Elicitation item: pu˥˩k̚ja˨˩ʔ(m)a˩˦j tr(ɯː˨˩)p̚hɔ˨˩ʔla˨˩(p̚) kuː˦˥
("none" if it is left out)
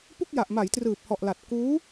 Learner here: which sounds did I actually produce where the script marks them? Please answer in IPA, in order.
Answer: m, ɯː˨˩, t̚

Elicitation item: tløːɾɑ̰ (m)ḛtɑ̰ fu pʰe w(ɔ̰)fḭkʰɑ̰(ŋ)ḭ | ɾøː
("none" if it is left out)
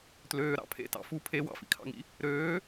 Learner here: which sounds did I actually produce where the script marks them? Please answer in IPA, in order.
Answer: pʰ, ɑ̰, ŋ

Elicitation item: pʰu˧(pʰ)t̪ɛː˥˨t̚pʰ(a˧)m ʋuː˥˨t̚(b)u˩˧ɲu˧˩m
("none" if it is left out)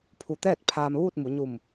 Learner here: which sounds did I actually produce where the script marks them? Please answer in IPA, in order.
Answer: none, aː˧, m

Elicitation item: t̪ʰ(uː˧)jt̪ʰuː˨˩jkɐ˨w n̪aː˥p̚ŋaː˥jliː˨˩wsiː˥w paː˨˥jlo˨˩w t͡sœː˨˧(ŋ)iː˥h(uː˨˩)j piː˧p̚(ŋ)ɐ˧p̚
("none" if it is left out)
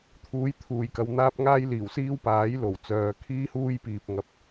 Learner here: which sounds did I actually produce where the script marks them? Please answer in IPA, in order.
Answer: uː˨˥, kʰ, uː˥, ŋ

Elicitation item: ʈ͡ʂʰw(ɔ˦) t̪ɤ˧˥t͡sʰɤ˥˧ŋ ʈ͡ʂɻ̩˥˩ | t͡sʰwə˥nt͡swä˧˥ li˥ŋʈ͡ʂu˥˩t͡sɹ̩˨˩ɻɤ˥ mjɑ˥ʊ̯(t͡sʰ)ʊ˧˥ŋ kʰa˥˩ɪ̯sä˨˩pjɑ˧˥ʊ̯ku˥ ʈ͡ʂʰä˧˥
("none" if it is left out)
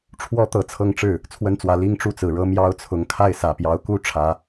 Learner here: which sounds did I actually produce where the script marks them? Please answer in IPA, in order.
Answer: ɔ˥, t͡sʰ

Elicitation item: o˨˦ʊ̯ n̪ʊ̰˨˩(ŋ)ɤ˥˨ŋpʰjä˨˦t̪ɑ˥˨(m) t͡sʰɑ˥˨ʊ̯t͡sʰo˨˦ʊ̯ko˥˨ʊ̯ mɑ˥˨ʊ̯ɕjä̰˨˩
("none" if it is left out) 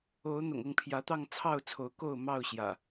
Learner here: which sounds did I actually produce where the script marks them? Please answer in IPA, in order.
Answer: ŋ, ŋ

